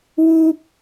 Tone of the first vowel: high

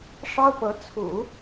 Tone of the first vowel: high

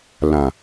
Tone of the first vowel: low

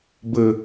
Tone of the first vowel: low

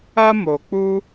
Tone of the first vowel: high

